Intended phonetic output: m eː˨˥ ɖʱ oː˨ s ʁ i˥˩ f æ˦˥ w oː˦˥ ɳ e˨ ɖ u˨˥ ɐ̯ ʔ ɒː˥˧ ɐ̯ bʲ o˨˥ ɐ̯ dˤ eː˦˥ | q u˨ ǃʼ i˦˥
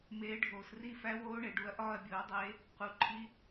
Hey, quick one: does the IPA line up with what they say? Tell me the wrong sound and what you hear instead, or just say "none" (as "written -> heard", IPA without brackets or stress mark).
ʁ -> r